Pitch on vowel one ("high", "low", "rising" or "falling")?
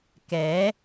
rising